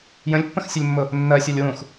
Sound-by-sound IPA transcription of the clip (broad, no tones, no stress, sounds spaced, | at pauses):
j ə̃ lʲ pː ə̃ x sʲ ə lʲ mː ʊ | nː ɜ sʲ ɒ lʲ w ũ x